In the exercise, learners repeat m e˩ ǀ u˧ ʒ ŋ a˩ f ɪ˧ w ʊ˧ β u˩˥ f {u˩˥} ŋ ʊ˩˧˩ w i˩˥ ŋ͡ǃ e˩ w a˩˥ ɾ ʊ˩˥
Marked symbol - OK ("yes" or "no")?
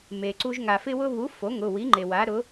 no